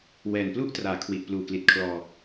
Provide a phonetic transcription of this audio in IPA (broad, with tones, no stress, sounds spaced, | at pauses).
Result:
w ɛː˨˩ n p l u˥˩ ʔ t r aː˨˩ kʰ w i˨˩ ʔ p l uː˨˩ k l i˨˩ t̚ kʰ l ɔː˧